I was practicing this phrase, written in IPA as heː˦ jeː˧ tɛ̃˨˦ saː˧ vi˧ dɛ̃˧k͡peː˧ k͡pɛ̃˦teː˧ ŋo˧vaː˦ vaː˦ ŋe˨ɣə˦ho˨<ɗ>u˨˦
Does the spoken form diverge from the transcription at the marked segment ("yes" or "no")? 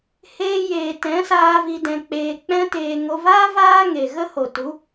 yes